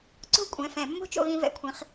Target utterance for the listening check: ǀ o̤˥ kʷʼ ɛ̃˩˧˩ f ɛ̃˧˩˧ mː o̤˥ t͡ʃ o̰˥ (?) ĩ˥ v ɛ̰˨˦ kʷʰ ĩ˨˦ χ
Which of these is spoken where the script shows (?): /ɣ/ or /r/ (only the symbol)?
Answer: ɣ